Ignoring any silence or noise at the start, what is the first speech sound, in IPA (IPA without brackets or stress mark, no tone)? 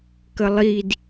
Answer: k